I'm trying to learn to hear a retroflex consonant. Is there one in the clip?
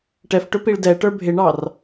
yes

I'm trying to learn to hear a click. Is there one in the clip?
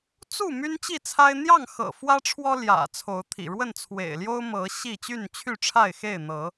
no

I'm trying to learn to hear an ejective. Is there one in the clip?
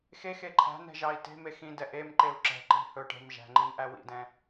no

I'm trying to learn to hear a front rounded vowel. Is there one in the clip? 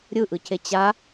no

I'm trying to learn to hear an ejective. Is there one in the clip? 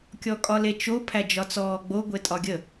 yes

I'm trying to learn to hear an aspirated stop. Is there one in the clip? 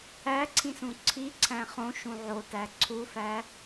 yes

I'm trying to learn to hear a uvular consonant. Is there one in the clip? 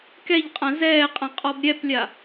yes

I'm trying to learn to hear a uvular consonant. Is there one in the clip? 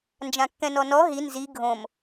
no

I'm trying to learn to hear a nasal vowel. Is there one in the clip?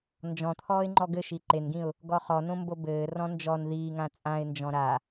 yes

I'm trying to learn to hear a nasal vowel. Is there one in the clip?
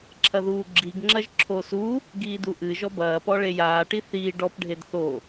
no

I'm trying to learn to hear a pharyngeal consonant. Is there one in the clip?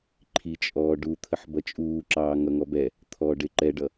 yes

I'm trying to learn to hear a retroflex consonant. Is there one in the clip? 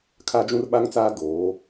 no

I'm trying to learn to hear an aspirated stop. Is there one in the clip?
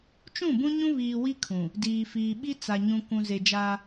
yes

